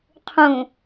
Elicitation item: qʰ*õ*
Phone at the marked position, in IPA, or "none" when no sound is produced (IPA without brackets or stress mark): ũ